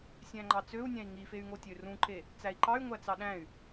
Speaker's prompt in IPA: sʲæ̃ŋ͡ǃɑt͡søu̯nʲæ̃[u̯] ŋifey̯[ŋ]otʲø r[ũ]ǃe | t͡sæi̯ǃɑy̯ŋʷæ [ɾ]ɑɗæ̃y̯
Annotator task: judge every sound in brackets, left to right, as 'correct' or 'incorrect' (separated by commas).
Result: incorrect, correct, correct, incorrect